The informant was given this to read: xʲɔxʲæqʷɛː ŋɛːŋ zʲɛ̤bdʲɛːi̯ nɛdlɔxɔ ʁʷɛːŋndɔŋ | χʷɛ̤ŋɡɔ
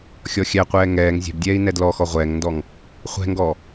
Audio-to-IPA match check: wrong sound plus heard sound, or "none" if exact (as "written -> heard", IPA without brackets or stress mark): none